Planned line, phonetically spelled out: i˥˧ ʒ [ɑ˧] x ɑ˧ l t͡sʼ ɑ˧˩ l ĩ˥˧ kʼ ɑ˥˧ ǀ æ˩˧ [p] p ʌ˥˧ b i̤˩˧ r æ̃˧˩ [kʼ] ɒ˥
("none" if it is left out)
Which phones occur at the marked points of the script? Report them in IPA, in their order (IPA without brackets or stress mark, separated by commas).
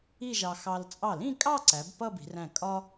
ɑ˧, b, kʼ